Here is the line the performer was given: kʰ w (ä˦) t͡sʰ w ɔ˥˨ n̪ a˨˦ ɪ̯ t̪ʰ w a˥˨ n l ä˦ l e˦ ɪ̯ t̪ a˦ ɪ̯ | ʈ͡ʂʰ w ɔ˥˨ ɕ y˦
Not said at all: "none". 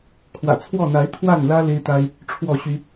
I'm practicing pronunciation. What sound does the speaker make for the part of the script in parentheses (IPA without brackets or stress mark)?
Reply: ä̰˨˩